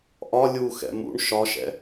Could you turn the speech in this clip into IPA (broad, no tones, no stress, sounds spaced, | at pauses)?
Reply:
ʔ ɒ lʲ u x ɛ̰ m ṵ ɳ ʃ ɒ ʃ ɛ̰